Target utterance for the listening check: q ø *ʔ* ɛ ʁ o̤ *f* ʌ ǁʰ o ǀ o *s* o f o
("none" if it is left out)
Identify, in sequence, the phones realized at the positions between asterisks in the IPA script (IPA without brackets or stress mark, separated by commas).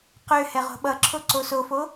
h, ɓ, s